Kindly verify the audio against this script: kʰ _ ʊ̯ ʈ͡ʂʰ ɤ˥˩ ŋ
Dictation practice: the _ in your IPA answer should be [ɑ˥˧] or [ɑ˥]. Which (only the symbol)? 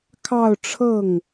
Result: ɑ˥˧